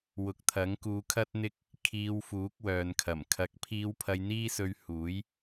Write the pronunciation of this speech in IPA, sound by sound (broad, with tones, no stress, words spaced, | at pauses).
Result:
wʊ˨˥k̚t̪ʰɐ˨˥ŋkuː˧kʰɐ˥t̚ n̪ɪ˥k̚ | kʰiː˧wfuː˨˥k̚wœː˨nkʰɐ˨˩m kʰɐ˨˥k̚pʰiː˧w pʰɐ˧jn̪iː˥sɵ˧ɥ huː˨˥j